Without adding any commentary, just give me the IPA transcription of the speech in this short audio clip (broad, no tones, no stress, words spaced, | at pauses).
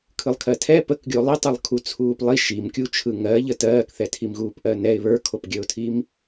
kʰɯlˠkʰɜtʰɛ pəkɡʲo lˠitˤɯlˠ kʰut͡sʰuːplˠi ʃimkʲu t͡ʃʰɯŋɜʎə tɜːkθɛtʰimɣuːp ʔɜnɛɪ̯ βə˞kʰopɡʲəʊ̯tʰim